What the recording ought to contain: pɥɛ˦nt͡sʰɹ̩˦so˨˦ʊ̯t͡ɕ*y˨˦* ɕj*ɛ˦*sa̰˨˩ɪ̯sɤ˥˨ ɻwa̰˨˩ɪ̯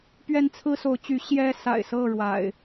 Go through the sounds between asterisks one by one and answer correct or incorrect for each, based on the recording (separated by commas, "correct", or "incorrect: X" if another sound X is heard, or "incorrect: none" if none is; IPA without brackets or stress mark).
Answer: correct, correct